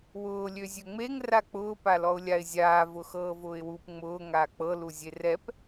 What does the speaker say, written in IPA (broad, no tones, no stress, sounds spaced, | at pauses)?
w ʊː lʲ ø zʲ ø ŋ͡m e ŋ r a k͡p ʊː p a l ɔ ʊ̯ lʲ a ɪ̯ zʲ aː v ʊ x ɤː v ʊː ɪ̯ w u p ŋ͡m ʊː ŋ aː k͡p ɤ l u zʲ e r ɛ p